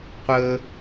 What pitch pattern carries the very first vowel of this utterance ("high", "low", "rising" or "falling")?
high